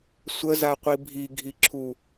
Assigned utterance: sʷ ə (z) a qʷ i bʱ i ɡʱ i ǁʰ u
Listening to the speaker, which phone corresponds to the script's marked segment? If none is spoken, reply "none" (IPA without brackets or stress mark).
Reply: z